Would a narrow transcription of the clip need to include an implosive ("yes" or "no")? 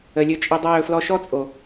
no